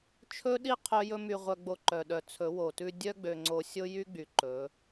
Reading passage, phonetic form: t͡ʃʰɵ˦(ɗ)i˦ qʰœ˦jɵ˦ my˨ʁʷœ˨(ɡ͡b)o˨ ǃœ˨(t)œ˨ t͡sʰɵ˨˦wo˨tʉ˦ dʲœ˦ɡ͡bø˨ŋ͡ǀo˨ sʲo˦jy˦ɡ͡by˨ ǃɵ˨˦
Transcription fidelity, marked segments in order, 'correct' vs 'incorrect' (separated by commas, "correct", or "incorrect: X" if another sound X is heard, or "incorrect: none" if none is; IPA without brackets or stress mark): correct, correct, incorrect: ɗ